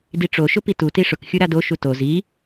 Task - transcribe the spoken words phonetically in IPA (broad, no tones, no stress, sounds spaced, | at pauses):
d i ʈ͡ʂ o ʃ ʊ p i t u t i ʂ ʊ k xʲ u ɾ a d o ʃ u t o z i